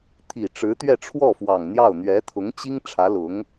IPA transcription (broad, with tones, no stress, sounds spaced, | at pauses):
t̪ʰ i˨˩ ʈ͡ʂ ɻ̩˧˥ t̪ ɥ ɛ˥˧ ʈ͡ʂʰ w ɔ˥˩ f w ɑ˨˩ ŋ n̪ j ɑ˥˩ ʊ̯ n̪ ɥ ɛ˧˥ t̪ʰ ʊ˧˥ ŋ t͡ɕ i˥ ŋ ʈ͡ʂʰ ä˧˥ l ʊ˧˥ ŋ